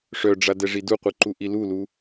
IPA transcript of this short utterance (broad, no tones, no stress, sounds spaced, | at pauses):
ʂ œ ɖ͡ʐ a d ɛ ʐ i d u qʷ ɯ ǃ u ʔ i l u l u